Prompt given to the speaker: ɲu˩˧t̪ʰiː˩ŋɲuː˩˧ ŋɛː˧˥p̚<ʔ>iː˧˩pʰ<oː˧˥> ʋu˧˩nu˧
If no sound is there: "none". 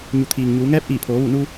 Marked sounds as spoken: ʔ, oː˩˧

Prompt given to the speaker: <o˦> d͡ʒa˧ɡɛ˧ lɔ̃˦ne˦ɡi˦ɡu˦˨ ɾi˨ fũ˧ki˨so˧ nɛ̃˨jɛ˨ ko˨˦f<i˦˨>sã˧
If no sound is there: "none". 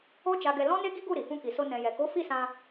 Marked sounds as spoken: o˦, i˦˨

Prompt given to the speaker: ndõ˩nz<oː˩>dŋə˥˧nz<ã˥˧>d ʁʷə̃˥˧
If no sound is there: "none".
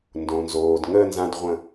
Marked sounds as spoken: oː˩, ã˧

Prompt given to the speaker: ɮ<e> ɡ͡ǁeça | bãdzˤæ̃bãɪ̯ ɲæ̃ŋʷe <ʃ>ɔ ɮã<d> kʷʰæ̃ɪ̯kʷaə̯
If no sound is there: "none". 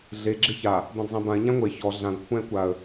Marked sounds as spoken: e, ç, d

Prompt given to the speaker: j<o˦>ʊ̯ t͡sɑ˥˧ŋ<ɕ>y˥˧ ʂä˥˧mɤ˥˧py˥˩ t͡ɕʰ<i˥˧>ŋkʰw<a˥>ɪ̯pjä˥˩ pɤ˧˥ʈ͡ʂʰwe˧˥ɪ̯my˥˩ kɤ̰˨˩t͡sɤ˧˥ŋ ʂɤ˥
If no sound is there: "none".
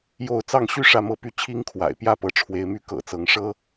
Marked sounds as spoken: o˥˧, ɕ, i˥, a̰˨˩

